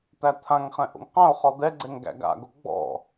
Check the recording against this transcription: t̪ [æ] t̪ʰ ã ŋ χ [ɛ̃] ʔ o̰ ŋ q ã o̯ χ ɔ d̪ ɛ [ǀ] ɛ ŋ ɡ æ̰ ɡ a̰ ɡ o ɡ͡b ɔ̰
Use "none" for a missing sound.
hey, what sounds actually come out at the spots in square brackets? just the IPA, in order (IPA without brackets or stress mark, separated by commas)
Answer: æ, ɛ̃, ɡ͡ǀ